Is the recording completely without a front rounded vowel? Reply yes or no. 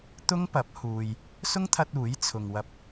yes